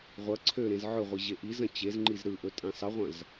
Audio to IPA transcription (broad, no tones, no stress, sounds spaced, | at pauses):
ʁʷ ɐ ǀʰ ø ɾ ẽ z ʕ ɵ ʁʷ i ʑ e ʔ i z ɐ̃ t͡ɕ e z ŋ͡ǃ i z ɾ ɯ ʔ ɵ tʼ ẽ sˤ ə ʁʷ ɐ̃ z